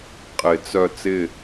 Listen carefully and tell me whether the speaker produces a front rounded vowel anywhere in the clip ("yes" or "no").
yes